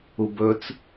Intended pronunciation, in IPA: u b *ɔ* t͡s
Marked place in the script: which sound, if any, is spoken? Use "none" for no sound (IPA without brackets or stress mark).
ɵ